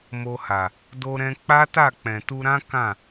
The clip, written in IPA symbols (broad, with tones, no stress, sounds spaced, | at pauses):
m o˧ h a˨ | d o˧ ɾ ɛ̃˧ k͡p a˦ t a˦˨ k͡p ɛ̃˨ t u˧ ɾ ã˦ k ã˦˨